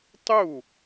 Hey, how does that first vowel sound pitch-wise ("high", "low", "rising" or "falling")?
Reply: falling